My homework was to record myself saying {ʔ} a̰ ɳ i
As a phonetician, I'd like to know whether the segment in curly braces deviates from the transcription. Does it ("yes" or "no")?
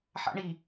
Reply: yes